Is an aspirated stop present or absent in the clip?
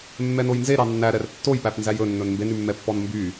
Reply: absent